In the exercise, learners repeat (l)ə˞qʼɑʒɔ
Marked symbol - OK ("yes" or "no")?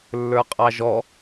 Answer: no